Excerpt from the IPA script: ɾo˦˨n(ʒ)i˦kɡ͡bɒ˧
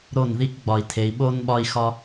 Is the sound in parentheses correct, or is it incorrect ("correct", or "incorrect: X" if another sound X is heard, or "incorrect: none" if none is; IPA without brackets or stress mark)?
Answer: incorrect: ð